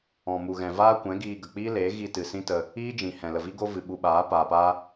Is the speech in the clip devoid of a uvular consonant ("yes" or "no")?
yes